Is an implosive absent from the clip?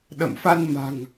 no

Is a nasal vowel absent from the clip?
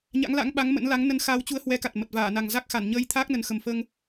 yes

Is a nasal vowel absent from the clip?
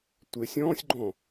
no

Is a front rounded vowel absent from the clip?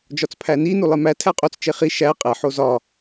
yes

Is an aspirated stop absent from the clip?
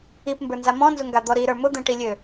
yes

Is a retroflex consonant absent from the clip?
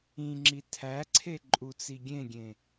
yes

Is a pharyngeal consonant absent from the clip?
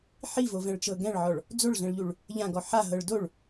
no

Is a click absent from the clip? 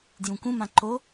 no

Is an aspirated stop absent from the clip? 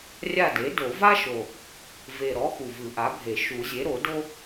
yes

